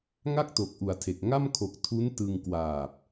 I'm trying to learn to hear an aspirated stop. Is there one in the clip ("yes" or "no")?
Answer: yes